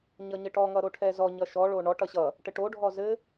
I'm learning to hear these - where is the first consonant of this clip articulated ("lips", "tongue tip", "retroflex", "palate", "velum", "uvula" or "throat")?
palate